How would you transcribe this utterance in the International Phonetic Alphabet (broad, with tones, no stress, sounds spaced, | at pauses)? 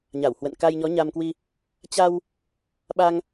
ɲ a˧˩ w h w ə̰˧˨ n k a˧ j ɲ ɔ˨˦ ɲ a˧ m k w i˧ | t͡ɕ a˧ w | ɓ a˧ ŋ